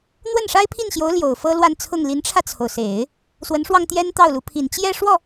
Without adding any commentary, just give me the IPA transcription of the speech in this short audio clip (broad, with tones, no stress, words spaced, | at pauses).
n̪wə˥˩nʂa˥ɪ̯pʰi˥˩nɕjo˧˥ʊ̯ ljo˨˩ʊ̯fɤ˥lwa˥˧nt͡sʰʊ˥˩ŋ li˧˥nʈ͡ʂʰä˧t͡sʰo˩ʊ̯se˨˩˦ɪ̯ | swə˧˥nʂwɑ˧ŋ t̪jɛ˥nt̪ɑ˥˩ʊ̯lu˧˥pʰi˨˩n t͡ɕjɛ˥˧ʂwɔ˥˩